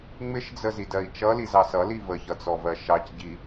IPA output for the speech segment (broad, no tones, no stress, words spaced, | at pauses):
ŋ͡mɪʃd͡zəzidɜi̯ t͡ʃʌlizɑ sʌli vəçʌt͡sɔvɜ ʃɑcɟi